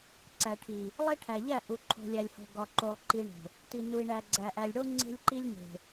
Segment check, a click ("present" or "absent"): present